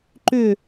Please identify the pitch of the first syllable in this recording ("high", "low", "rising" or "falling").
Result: falling